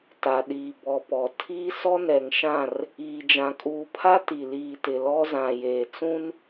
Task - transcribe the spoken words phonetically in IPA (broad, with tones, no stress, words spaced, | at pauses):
ta˨ɗiː˨ bɔ˨pɔ˨ tʰiː˦sɔ˦nɛ˨ŋʃã˦˨r | iː˨ d͡ʒã˨kʼuː˨pʰa˦ ti˨ liː˨tɪ˨ lɔ˦zã˨jeː˨ t͡sũ˦n